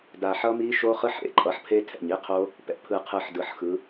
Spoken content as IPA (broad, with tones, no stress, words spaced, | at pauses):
da˨˩ħʌ˦˥mi˦˥ʃo˦˥ χɯ˦˥ħḛ˨˦ǃʼʌ˨˩ħpʰe˦˥ tʰɛ̰˨˩ɲi˦˥qʰo˦˥ | pɛ̰˨˩pʰɯ˨˩qʰɯ˨˩ħ dɯ˨˩ħxɯ˨˦